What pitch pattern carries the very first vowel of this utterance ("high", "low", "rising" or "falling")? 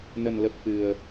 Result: low